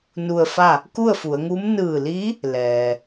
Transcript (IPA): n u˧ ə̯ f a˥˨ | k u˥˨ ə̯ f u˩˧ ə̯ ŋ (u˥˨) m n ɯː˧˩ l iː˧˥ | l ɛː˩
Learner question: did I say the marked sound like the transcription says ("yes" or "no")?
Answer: no